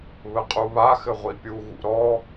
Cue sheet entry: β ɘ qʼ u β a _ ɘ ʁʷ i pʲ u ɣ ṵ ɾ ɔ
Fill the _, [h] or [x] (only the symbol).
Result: x